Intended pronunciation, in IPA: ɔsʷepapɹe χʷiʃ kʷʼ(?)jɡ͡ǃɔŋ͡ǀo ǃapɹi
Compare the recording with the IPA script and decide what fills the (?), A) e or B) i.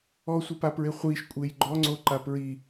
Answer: A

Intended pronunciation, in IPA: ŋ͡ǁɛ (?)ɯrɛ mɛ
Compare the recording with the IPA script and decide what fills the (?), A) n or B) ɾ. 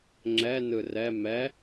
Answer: A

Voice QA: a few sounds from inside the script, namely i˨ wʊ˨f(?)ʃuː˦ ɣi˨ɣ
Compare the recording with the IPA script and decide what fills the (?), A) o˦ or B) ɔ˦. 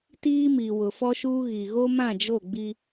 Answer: B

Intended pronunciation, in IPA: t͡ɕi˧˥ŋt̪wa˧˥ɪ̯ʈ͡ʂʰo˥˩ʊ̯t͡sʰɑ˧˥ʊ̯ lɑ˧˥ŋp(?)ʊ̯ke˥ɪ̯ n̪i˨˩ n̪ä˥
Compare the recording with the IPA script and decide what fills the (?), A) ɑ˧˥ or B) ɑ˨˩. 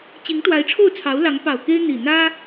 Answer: B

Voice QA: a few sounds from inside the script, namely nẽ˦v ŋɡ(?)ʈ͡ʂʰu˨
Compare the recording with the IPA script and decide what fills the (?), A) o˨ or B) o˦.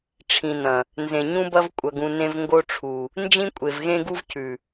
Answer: B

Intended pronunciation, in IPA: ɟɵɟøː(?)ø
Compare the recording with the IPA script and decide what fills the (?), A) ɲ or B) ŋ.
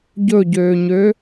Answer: A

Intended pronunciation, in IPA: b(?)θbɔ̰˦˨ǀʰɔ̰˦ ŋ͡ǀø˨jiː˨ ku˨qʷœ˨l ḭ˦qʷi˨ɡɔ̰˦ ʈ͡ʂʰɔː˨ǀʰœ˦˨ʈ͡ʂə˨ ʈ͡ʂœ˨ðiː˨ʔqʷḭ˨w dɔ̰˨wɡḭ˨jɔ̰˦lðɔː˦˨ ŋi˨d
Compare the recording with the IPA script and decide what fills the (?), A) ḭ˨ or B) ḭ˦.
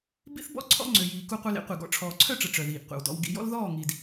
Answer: B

